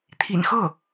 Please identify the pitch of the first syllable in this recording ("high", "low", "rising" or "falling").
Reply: low